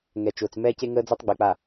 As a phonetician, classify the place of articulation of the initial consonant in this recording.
velar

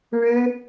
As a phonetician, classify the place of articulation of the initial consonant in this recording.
retroflex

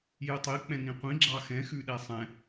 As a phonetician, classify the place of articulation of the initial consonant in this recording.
palatal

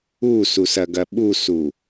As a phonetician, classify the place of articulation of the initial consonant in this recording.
alveolar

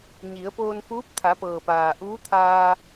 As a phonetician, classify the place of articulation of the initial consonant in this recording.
palatal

